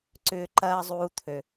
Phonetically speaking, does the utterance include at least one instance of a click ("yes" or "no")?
yes